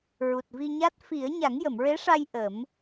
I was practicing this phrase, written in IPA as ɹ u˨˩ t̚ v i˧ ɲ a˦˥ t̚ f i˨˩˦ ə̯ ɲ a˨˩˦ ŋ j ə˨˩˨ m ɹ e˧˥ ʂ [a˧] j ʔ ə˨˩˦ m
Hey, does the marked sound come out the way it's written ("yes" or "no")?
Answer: yes